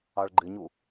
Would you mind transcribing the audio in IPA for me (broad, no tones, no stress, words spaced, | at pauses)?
ɑɭɡ͡ǃɪɲu